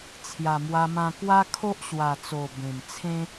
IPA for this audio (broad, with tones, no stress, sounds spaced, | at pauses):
t͡sʰ j a˨˩ m w a˧ m ã˧ k w a˦ kʰ o˦ ʔ ɕ w a˨˩ t͡s o˨˩ b ẽ˨˩ m t͡sʰ ẽ˦